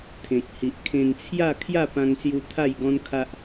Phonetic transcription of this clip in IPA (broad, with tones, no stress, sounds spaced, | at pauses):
t̪ʰ ẽ˨ k̚ h i˨ ʔ kʰ ẽ˧ n t͡sʰ j a˥˧ kʰ j a˥˧ p ã˧ ŋ s j u˧ t̪ʰ a˥˧ j ɡ ɔ̃˦ n kʰ a˦ ʔ